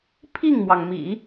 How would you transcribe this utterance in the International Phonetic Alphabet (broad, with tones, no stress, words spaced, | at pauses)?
pʰi˥˩ŋmwɑ˩ŋmḭ˨˩˦